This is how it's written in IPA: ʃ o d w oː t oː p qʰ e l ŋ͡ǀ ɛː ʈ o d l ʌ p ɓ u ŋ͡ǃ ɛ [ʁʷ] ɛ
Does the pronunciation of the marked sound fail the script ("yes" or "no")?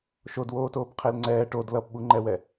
yes